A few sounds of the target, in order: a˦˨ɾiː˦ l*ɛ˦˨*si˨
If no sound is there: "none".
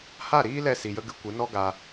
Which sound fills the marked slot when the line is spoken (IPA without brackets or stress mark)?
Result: ɛ˦˨